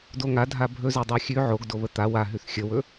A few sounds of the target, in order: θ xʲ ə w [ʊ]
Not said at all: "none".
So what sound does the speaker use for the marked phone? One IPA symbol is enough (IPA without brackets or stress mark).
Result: ɵ